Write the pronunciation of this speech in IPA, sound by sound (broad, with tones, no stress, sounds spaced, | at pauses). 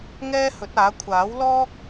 ŋ ɛː˥ h ɵ˨˥ t̚ aː˨˥ kʷʰ aː˨˥ w l ɔː˥ k̚